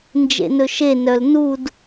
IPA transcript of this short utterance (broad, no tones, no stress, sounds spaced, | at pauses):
n d͡ʒ ḛ n ɵ ʃ e n œ l n u d